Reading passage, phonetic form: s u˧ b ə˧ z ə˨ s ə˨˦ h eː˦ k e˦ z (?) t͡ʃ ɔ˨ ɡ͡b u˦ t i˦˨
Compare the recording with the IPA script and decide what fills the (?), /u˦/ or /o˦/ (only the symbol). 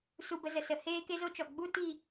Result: o˦